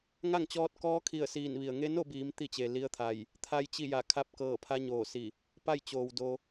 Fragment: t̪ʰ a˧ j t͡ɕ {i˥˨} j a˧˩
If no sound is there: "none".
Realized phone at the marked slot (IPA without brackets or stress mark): i˥˨